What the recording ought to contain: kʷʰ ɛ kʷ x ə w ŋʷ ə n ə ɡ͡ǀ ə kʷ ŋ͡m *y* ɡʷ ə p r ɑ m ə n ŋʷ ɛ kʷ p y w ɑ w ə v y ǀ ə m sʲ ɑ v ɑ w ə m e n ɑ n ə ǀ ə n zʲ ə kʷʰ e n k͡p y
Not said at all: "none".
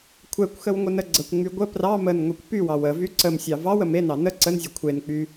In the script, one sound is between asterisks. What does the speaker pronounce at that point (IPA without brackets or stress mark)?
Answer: y